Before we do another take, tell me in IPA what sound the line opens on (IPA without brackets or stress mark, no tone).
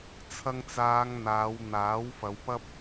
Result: t͡sʰ